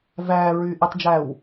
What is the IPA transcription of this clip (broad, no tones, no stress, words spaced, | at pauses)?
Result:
væːɹyːʔitˤd͡ʒæːw